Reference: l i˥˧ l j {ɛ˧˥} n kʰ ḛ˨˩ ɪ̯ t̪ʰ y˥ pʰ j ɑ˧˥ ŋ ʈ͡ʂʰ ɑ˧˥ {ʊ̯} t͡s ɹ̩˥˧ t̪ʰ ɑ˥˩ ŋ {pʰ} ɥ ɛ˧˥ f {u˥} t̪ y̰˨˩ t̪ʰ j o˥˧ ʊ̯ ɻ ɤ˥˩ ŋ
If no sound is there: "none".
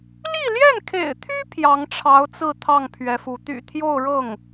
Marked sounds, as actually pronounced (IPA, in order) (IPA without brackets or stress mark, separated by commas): ɛ˥˩, ʊ̯, pʰ, u˧˥